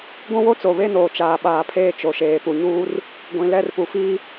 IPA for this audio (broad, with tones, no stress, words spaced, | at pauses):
ɡʷũ˦wo˦ t͡so˨βe˦noː˨ t͡ʃaː˨ɓaː˨pʰeː˦˨ t͡ʃo˨ʃeː˨pu˨ɲuː˦r | ɡʷĩ˨ lɛ˦˨rpu˨fiː˦